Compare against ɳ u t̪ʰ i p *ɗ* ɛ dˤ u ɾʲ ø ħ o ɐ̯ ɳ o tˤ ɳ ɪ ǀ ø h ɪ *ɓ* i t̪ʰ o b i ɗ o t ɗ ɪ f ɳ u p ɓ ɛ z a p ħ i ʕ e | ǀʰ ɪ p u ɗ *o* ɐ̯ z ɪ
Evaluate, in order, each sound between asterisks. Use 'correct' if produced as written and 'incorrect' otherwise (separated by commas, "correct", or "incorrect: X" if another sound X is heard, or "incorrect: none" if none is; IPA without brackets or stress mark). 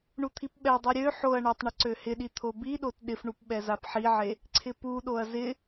incorrect: ɓ, incorrect: ɗ, correct